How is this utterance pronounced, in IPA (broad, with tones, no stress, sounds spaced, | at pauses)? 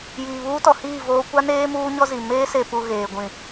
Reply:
j iː˨ β uː˦ t ɔ˨ h iː˦˨ v oː˦ kʷ a˦ n eː˦ m uː˦ ɲ ɔ˦ z i˨ m eː˦ s e˨ p u˨ ɣ eː˨ ɡʷ ĩ˨